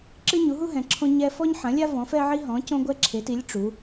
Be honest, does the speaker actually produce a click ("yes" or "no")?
yes